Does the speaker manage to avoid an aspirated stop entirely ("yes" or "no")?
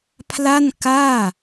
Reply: no